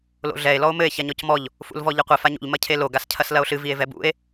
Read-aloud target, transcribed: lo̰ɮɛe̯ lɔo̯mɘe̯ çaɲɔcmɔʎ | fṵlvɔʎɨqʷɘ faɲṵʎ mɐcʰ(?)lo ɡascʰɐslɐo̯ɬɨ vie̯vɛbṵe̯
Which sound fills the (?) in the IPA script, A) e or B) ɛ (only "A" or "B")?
A